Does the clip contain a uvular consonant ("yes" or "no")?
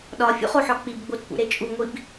yes